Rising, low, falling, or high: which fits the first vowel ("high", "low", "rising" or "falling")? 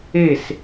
falling